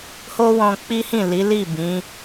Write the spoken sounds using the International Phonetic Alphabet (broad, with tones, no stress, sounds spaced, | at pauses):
h o˦ w ɔ̃˧ k͡p i˦ h ĩ˦˨ l i˨˦ l i˦˨ b ĩ˨˦